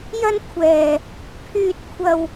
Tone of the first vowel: high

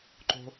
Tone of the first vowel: high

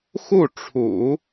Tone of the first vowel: falling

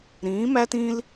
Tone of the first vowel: rising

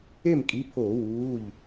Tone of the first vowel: falling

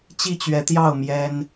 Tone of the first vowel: falling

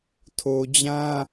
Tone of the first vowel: low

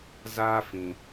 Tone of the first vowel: high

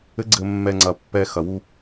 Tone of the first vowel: rising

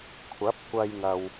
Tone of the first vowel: rising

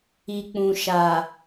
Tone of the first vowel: low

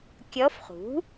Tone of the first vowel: rising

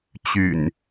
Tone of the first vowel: low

